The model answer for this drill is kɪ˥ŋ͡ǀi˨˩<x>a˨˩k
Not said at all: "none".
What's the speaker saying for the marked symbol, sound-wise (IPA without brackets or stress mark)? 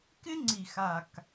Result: x